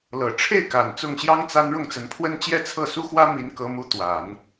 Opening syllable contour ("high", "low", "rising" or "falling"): low